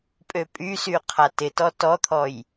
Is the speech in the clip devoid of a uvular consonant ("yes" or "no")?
no